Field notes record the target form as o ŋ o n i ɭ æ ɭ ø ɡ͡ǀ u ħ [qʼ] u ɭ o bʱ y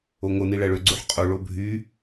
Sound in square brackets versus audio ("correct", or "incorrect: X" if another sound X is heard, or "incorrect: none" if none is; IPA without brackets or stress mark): correct